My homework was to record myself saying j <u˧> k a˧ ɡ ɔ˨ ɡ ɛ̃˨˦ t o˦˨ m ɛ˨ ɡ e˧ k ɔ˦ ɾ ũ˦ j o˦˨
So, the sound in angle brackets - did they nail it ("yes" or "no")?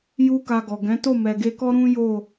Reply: no